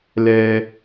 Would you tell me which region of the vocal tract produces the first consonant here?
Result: tongue tip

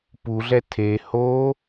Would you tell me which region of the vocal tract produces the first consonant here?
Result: lips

